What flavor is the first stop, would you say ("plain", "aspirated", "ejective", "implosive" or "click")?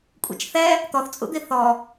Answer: ejective